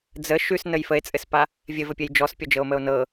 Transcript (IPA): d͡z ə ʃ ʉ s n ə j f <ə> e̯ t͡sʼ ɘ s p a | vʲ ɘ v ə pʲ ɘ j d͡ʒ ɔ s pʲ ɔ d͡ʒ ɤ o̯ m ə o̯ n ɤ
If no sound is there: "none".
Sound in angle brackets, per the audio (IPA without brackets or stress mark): ə